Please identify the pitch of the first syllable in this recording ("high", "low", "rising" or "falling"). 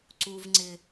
high